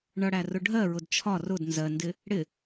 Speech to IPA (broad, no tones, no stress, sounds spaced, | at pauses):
ɳ ʌ ɽ æ r ʊ ɖʱ ɜ ɹ ʊ d t͡ʃʰ ɒ r ʊ d n z ɜ n d ɪ | ɽ ɪ